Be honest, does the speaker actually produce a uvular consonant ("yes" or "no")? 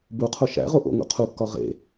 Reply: yes